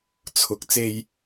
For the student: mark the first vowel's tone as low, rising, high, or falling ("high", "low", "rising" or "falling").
low